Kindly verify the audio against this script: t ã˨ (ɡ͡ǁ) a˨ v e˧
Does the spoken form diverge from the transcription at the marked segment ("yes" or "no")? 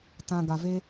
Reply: yes